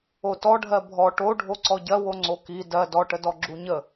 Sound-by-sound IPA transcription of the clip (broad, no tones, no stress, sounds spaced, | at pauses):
o t ɔ ɖʱ ɜ bʱ ɔ ʈ o ɖʱ o ǀ ɔ ɟ ɜ w o ŋ͡ǀ o k i d ɜ d ɔ ʈ ə d ɔ ɡ͡ǁ u ɲ ə